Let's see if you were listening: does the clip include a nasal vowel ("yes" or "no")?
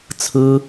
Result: no